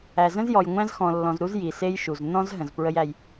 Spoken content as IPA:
æ˨ z ə̃˦ z j ɔ˨ j ŋʷ æ̃˦ z x ɔ̃˨ lː ɔ̃˨ z ɾ u˦ z j i˨ s e˦ j ʃ u˨ z n ɔ̃˦ z ɦ ə̃˨ z p ɹ ə˦ j æ˦ j

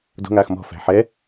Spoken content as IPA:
d o̤ ŋ aː x m ɔ̤ f æ̤ ħ ɛ

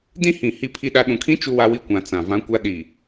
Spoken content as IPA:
d ĩ˦ h ĩ˨ h i˦ pʰ i˦ ɗ a˦ ɗ ũ˨ kʰ ĩ˦ t͡ʃ u˦ w a˦ w i˦ kʷ ã˨ t͡s ã˨ v ã˦ kʷ a˦ ɗ i˨

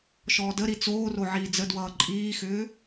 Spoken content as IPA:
ʃ ɔː d ə ɾ i t͡s oː r o ʕ iː d͡z ə d w ʌː ǃʼ iː x ʏː

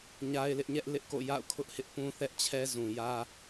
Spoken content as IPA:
ɲ a˦ ɪ̯ l ɪ˦ ʔ ɲ ɛ˦ ʔ l ɪ˦ ʔ k o̰˦˨ j a̰˦˨ ʊ̯ kʰ ʊ˦ ʔ h ɪ˦ ʔ p ũ˦ θ ɛ˦ ʔ t͡ɕʰ ɛ˦ z ũ˨ j ä˦

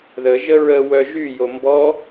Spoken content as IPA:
ð ə ʒ ə ɹ ə w œ ʒ y j o m b ɔ

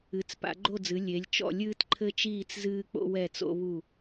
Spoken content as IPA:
ɨ˩˧ t͡s p a̰˩˧ ɡ͡ǃ o˦˨ d͡z ɨ˩˧ lʲ e˩˧ lʲ t͡ʃ ɔ̰˦˨ lʲ ɨː˦ t ǃʰ ɘ˦ t͡ʃ iː˦˨ t͡s z ɨː˦ k͡p o̰˦ w ɛ˦˨ t͡s o̰˦ β u˦˨

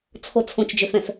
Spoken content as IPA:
t͡sʰ o t͡sʰ õ t͡ʃ d͡ʒ ø f ɛ̃ f

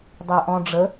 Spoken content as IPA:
dˤ ə ʊ̯ ʔ ɔ̃ ɖ͡ʐ ə

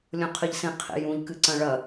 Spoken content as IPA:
lʲ õ qʰ ɨ ʎ s ẽ qʰ ḛ j ũ ʎ k ɨ ǀ ɐ̃ ɭ ɐ

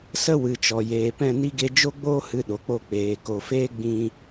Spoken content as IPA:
s ə˦ w ɨ˨ t͡ʃ ɔ˨ j eː˨ p ɛ̃˦˨ n i˦ ɡ e˧ d͡ʒ o˦ ɡ͡b oː˦ h ɨ˧ ɗ o˨ k͡p o˧ k͡p eː˨ k o˨ f eː˦ ɡ͡b ĩ˧

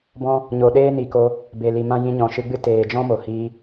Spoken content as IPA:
b ɔ̃˦ | ɲ o˨ ɗ eː˦ n i˨ k o˧ | b e˨ l i˨ m ã˦ j ĩ˧ ɲ ɔ̃˨ ʃ ɨ˧ ɡ͡b ɨ˦ t eː˨ d͡ʒ ɔ̃˦ m o˨ h iː˧

